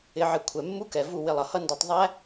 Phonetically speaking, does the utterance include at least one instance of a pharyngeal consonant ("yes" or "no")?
yes